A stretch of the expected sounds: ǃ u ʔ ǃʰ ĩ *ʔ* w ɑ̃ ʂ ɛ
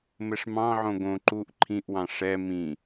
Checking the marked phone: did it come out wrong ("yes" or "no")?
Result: no